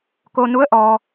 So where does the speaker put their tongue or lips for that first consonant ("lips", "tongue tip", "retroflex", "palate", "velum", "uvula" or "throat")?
velum